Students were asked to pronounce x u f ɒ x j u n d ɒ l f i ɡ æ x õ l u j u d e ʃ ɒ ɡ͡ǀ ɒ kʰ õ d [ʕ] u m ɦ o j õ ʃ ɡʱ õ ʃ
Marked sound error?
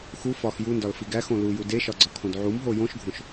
no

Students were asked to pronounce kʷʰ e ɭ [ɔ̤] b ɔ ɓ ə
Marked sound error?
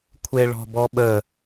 no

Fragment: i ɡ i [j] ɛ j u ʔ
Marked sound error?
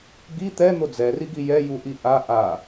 no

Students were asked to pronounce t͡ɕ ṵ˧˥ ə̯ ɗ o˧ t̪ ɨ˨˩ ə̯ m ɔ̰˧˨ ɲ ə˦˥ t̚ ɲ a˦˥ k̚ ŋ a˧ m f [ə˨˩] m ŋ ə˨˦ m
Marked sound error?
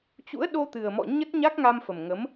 no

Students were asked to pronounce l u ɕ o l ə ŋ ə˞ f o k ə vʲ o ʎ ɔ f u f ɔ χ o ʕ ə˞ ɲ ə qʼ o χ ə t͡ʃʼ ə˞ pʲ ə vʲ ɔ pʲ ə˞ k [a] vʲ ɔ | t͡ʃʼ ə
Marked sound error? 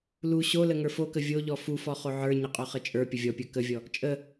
yes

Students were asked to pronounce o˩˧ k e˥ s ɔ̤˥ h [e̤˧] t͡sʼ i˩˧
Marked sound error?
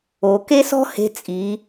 no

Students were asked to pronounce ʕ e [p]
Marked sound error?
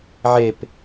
no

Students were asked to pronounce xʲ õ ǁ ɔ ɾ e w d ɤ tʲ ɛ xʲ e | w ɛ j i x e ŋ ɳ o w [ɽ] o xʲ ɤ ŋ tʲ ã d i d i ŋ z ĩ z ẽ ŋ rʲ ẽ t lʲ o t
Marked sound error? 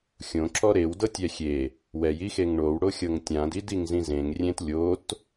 no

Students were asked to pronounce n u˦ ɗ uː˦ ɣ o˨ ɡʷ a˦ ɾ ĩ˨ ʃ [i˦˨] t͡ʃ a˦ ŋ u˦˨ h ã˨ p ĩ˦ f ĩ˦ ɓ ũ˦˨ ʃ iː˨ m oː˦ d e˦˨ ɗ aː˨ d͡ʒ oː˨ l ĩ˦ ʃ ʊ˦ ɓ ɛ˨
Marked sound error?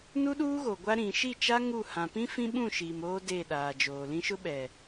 no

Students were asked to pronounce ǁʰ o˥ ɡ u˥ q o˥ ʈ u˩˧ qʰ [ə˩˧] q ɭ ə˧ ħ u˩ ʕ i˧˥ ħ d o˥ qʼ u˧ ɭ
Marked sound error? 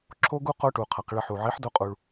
yes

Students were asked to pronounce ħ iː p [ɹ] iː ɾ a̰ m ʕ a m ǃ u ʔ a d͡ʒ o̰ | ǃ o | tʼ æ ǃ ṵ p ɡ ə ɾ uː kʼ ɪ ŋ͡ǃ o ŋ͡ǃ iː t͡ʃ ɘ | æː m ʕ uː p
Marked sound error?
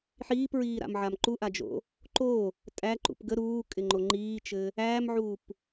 no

